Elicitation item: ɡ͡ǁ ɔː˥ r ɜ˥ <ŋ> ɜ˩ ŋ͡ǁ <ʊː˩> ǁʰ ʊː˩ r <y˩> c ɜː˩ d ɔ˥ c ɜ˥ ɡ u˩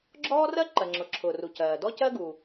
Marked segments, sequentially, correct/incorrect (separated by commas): incorrect, incorrect, incorrect